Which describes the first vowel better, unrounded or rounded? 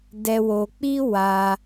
unrounded